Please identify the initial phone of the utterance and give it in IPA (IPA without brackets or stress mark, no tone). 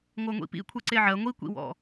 ŋʷ